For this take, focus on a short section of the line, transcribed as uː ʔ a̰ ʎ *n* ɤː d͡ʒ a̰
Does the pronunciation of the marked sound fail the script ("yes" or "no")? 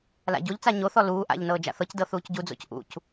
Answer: no